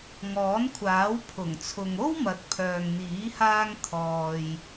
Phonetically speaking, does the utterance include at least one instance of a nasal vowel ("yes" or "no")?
no